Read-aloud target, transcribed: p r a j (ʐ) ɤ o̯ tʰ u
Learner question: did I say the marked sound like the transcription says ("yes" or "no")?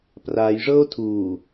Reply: yes